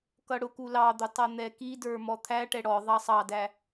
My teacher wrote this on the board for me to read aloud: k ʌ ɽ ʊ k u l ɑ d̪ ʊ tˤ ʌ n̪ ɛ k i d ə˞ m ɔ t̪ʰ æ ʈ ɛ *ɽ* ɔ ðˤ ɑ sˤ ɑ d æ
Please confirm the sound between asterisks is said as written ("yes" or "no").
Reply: yes